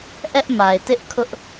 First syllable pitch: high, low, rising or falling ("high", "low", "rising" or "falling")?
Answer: high